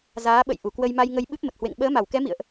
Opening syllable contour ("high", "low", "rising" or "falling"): rising